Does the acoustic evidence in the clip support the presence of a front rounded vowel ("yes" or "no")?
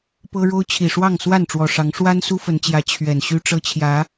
yes